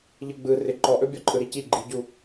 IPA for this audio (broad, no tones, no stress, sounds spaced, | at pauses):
ʎ ɯ ɡ͡b ɯ r ɪ ǃ ɔ ʔ ɵ bʲ ɔ ǃʼ ɯ ɾ i c i ɡ͡ǃ i ɟ u